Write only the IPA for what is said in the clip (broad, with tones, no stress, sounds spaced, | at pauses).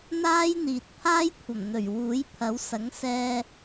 n̪ aː˥ j n̪ iː˨ t̚ pʰ aː˥ j kʷʰ ɐ˨˩ m n̪ ɵ˨˩ ɥ w uː˨˥ j pʰ ɐ˨˥ w s ɐ˨˥ ŋ s ɛː˧